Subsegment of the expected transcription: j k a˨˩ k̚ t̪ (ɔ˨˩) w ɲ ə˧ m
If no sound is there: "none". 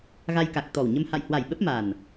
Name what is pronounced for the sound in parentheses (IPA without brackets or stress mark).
ɔ˨˩